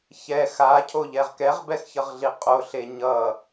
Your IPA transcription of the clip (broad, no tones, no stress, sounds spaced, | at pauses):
ç ɛ x a cʰ o ʎ ɛ ʁ k ɛ ʁ b ɛ x ç ʌ ʁ ɮ i qʼ o ɬ e ɲ ʌ